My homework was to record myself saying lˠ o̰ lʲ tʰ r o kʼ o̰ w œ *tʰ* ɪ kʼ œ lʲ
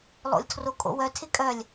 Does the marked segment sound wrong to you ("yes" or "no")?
no